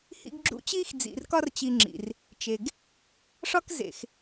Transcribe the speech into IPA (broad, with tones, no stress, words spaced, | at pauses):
hḭ˦ɡɡ͡ǁṵ˦t͡ɕiː˥x d͡zḭ˨rkɒ˦rt͡ɕi˨ŋ͡ǁḭ˩r | t͡ʃe˨ɡ | ʂɒ˥k zḛ˨x